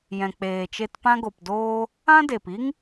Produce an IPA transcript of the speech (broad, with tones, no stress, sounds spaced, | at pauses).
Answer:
j ɛ̃˨ k͡p eː˨ t͡ʃ e˧ t p ã˧ ɡ o˨ p d oː˧ | ã˦ d e˨ p i˦ ŋ